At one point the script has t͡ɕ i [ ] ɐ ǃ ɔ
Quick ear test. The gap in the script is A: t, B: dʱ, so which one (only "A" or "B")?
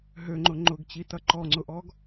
A